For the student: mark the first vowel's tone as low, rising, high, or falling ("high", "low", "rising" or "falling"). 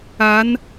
rising